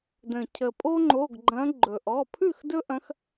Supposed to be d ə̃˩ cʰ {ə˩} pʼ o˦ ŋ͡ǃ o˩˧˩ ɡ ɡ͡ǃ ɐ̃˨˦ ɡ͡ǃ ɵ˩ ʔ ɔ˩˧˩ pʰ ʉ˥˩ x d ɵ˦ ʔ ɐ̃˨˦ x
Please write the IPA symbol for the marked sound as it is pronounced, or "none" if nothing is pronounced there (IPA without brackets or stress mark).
ə˩